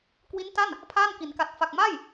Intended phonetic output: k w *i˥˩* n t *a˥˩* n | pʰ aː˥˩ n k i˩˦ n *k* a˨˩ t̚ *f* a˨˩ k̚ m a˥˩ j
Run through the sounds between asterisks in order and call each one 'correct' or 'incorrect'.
incorrect: i˦˥, correct, correct, correct

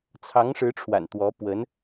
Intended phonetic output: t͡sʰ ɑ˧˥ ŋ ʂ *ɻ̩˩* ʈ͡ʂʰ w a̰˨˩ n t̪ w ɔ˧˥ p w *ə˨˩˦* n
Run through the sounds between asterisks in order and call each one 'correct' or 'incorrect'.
incorrect: ɻ̩˧˥, incorrect: ə˧˥

